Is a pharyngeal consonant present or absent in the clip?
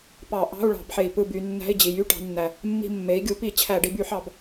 present